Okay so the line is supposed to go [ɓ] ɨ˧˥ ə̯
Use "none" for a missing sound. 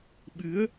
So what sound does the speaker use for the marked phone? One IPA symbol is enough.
ɓ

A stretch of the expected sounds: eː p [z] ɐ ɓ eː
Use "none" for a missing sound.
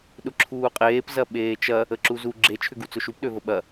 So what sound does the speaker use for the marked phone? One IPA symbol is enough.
z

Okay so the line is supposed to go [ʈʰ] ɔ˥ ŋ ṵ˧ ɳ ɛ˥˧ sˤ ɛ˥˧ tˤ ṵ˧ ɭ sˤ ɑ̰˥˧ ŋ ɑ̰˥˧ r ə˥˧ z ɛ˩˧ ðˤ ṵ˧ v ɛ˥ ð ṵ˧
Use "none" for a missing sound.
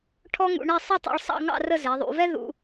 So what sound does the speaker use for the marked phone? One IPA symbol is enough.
ʈʰ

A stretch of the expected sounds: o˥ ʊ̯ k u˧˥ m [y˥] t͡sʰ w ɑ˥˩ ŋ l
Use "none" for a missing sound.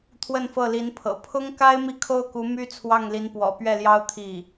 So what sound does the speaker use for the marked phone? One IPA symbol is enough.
y˥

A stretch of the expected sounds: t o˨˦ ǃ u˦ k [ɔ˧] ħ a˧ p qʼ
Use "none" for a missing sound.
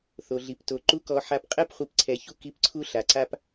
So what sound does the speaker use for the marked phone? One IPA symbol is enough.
ɔ˧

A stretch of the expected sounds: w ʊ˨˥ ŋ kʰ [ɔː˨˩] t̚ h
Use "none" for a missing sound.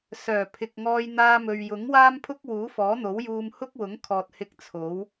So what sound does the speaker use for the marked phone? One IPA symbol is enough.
ɔː˨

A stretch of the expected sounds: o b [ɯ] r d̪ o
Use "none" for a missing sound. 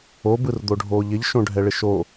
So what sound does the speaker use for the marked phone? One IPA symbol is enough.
ɯ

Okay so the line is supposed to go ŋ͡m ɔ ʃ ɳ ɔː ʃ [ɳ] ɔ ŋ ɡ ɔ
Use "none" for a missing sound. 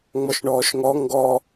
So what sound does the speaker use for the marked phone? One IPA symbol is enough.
ŋ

